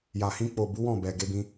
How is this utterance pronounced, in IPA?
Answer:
j a˨ h ĩ˧ k͡p o˨ b u˨˦ w ɔ̃˦˨ b ɛ˨ ɡ e˧ b ĩ˧

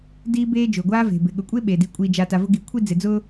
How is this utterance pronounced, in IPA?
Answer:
d iː˦ b eː˦ d͡ʒ ʊː˩ ɡʷ aː˦ v e̤˩ b ɪ˩ ɠ ʊ˨ kʷʼ e˥ ɓ eː˩ d i˨ kʷʼ iː˨ d͡ʒ a˨ t a˨ v ʊ˦ ɡ i˨ kʷʰ i˥ d͡z ɪ˨ d͡z ʊː˥

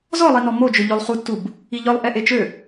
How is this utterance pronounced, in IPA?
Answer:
z ɔ lˠ i n ɔ m o d͡ʒ ø ʎ o lˠ χ u tː u b | i ʎ œ lˠ ʔ ɛ ʔ e t͡ʃ ø

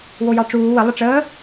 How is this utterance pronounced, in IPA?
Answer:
w o j ɑ ʈ͡ʂ uː w ə lˠ ə ʈ͡ʂ əː

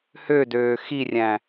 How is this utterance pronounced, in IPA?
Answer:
h ø d øː x i rʲ æ̃

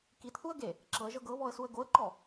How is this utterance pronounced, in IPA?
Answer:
k i t θ u ə̯ ɡ e | ǁ ɤ ə̯ ʒ ɤ ɡ ɤ β ɔ ə̯ s u ə̯ ɡ o ə̯ ǃ ɔ

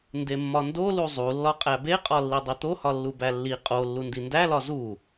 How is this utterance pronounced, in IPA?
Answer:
n d e mː ɒ n d o l u zˤ u lː ɒ qʼ æ b e qʼ ɒ lː i dˤ i t̪ o h ɒ lː u b æ lː i qʼ o lː u n d i n d æ l ɒ z u

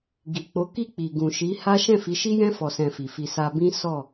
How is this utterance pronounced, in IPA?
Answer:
ɡ i˨ k͡p o˨˦ k i˦˨ k͡p i˨ ɡ ũ˨ ʃ i˨˦ h a˦ ʃ ɛ̃˦˨ f i˨˦ ʃ i˦ j ɛ̃˦ f ɔ˧ s ɛ̃˧ f i˨ f i˧ s a˧ b ĩ˦ s ɔ˦˨

